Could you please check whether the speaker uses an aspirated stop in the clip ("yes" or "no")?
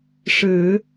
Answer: no